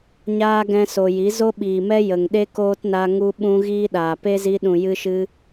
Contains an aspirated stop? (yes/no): no